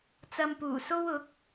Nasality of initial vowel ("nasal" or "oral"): oral